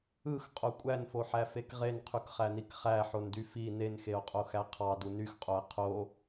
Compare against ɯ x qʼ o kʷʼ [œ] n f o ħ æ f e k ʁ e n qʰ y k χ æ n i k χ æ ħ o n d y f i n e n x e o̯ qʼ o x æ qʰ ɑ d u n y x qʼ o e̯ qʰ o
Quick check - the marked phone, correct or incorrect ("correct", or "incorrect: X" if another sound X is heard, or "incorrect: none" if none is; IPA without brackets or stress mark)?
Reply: incorrect: æ